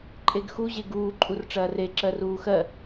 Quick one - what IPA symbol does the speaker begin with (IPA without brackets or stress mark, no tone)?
ǃʼ